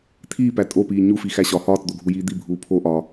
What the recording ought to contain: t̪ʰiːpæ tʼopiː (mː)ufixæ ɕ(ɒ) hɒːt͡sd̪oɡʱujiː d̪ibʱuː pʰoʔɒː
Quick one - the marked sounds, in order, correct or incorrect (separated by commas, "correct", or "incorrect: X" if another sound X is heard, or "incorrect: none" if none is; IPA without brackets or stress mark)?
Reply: incorrect: ɲ, correct